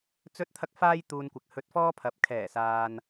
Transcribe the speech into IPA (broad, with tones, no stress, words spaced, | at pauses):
t͡sɵ˥t̚t̪ʰɐ˥k̚ faː˥jt̪uː˧nkʷɪ˨˥k̚ hɵ˧t̚fɔː˥pʰɐ˨˥p̚ kʰɛː˨˩saː˨n